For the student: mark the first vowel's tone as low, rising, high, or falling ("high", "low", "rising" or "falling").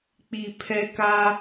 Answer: low